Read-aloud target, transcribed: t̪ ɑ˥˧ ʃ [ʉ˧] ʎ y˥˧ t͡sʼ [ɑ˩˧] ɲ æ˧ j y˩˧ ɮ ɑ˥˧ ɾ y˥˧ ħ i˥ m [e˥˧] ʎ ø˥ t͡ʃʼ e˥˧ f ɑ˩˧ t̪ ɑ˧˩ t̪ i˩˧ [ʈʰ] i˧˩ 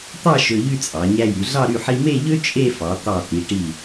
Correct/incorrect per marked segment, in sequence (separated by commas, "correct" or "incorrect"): incorrect, correct, correct, incorrect